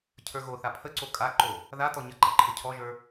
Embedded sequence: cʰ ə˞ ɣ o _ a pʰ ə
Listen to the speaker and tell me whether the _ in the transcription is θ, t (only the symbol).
θ